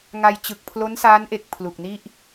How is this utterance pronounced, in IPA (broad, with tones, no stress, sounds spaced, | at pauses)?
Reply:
ŋ a˧ j t͡ɕ ɯ˨˩ k̚ pʰ l o˦˥ n s aː˦˥ n ʔ e˨˩ k̚ pʰ l u˨˩ k̚ n i˥˩ ʔ